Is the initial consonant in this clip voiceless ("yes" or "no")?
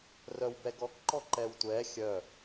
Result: no